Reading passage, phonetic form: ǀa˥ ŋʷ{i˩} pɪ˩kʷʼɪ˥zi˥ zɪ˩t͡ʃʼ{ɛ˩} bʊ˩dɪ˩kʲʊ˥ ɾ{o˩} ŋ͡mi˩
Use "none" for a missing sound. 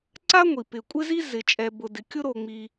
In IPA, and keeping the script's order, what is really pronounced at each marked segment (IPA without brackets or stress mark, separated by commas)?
i˩, ɛ˩, o˩